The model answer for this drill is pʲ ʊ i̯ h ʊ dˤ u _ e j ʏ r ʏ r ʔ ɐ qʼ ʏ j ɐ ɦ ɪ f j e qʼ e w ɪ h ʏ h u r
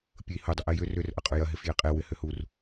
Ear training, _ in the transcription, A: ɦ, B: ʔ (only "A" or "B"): B